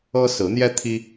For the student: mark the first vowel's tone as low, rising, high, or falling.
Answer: high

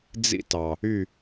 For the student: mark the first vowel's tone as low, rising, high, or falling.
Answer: high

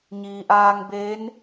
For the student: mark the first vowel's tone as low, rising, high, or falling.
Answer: low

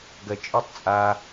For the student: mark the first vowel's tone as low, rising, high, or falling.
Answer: low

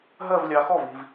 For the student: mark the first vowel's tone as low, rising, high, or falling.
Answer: falling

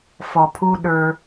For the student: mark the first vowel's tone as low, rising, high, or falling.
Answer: low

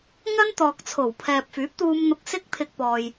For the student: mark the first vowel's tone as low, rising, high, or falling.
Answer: high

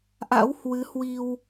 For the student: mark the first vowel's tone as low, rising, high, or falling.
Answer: rising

